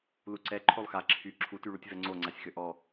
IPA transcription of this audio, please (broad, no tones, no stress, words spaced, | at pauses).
luǀɛ ǃʰolˠxa ǁʰy ǁʰutyɭutʲ vɛŋ͡ǀoŋ͡ǀasʲxø ʔɔ